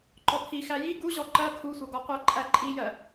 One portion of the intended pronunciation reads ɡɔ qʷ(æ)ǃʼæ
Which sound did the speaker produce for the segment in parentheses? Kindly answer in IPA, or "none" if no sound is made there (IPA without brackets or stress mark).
æ